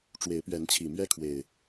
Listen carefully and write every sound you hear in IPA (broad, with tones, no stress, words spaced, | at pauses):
ʈ͡ʂwe˨˦ɪ̯pɥɛ˨˦nt͡ɕʰi˨˩mɥɛ˦ kʰwe˨˩ɪ̯